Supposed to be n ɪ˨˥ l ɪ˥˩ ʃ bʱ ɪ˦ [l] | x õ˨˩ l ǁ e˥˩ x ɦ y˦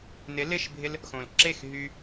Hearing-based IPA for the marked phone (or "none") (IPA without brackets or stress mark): l